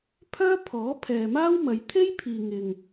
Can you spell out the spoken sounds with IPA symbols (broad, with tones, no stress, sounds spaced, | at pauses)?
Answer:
pʰ œː˥ pʰ ɔː˨˥ pʰ ɛː˨ m aː˥ w m ɐ˨˧ j t̪ʰ e˥ j pʰ iː˨ ŋ ɪ˨ ŋ